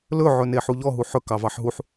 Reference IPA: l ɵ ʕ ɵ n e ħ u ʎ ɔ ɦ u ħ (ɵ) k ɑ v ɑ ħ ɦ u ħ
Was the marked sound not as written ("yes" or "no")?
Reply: no